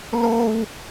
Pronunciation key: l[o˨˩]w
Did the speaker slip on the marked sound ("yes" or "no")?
yes